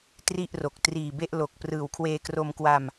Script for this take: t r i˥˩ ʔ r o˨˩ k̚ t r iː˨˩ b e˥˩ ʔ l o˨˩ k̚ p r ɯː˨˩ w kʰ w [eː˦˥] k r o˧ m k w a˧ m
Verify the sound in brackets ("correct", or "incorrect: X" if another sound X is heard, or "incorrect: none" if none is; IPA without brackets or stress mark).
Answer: incorrect: eː˧